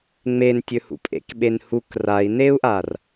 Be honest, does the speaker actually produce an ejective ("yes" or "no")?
yes